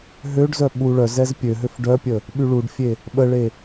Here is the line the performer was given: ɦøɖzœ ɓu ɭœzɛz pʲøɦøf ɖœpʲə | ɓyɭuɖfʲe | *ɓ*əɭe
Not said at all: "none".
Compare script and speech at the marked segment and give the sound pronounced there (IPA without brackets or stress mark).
ɓ